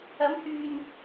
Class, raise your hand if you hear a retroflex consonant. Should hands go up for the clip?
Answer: no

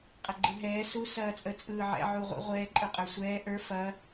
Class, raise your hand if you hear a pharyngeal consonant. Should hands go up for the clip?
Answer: yes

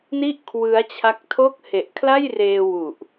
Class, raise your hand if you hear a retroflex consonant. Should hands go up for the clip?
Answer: no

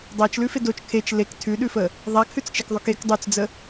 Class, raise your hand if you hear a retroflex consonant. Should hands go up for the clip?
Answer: no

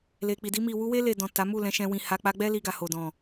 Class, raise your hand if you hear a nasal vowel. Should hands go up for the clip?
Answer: yes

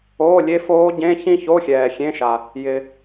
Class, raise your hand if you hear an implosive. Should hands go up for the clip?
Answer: no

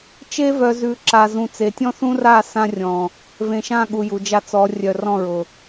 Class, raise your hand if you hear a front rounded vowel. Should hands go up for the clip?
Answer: yes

